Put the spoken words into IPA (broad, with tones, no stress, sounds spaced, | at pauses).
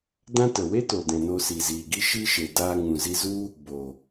d ã˦ t ə˨ w e˦ t o˨ d ɛ̃˨ n o˧ s i˨ z iː˨ ɡ i˦ ʃ i˦ ʃ e˨ d aː˧ ŋ ũ˨ z i˧ z u˦ | b o˨